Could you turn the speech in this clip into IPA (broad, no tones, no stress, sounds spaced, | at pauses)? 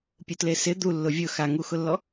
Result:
pʲ u t l e s ɪ d̪ u lː ʊ vʲ ʊ x a ŋ u x ʊ lː ɔ